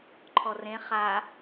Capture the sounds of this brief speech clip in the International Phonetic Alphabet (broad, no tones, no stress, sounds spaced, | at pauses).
ǃʰ ɔ r ẽ χ a